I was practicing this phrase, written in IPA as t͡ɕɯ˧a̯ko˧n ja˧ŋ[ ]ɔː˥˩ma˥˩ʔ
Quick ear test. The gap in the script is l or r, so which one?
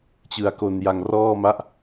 r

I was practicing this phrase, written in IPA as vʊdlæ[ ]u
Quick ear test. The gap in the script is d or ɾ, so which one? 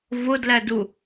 d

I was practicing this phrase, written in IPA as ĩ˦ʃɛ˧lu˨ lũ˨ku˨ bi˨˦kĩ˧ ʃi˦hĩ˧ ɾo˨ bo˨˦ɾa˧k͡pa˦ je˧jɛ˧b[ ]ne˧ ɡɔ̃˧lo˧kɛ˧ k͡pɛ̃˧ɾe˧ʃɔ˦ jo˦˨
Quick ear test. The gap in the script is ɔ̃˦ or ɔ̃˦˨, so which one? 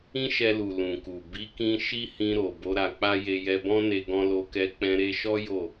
ɔ̃˦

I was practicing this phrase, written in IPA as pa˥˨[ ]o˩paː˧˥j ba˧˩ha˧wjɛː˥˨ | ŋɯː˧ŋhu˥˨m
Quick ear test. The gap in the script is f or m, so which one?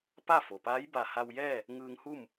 f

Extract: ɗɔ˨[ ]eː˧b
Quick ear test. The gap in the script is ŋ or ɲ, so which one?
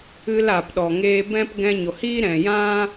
ŋ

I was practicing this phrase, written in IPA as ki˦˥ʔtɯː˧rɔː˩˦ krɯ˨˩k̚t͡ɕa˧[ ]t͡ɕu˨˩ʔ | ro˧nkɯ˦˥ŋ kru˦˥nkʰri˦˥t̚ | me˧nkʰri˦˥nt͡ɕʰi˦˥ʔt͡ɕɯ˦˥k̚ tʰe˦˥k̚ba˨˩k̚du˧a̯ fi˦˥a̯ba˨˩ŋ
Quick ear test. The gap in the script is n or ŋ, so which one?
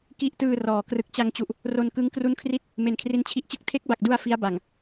ŋ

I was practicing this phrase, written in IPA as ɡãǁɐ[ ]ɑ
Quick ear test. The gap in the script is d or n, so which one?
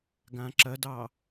d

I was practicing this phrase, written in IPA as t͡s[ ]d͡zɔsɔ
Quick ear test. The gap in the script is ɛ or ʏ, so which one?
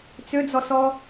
ʏ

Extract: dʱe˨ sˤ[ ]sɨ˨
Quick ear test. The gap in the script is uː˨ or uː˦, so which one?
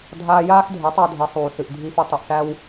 uː˨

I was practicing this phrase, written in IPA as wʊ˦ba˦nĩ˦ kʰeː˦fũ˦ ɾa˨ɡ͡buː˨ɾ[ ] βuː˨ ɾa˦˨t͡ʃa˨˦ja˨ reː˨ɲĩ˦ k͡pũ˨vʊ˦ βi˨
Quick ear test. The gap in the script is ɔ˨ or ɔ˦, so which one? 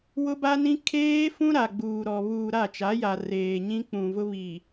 ɔ˨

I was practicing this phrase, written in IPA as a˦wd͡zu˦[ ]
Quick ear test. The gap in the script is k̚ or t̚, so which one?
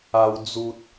t̚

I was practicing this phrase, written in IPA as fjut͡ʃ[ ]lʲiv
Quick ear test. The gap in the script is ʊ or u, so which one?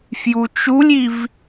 u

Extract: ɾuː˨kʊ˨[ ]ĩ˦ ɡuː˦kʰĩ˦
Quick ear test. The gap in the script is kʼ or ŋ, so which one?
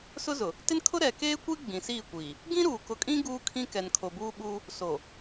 kʼ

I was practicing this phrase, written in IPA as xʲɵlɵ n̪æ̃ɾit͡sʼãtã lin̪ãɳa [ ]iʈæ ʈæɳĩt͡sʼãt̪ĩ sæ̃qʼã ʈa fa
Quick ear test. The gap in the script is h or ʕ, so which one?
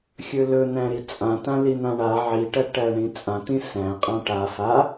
ʕ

